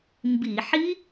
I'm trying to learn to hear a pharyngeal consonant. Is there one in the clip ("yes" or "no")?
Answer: yes